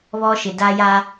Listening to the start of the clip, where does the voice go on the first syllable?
high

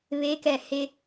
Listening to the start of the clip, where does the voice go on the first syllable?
rising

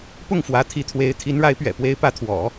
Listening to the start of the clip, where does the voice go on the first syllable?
falling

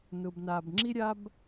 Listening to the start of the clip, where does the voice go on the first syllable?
low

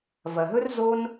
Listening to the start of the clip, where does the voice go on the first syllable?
low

